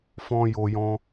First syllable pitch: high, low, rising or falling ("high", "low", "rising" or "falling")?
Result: high